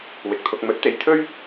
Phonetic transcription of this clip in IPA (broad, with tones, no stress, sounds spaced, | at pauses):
w ɪ˨ k̚ t̪ʰ ʊ˧ k̚ m ɵ˨˥ t̚ t̪ e˧ j t̪ʰ ɵ˥ ɥ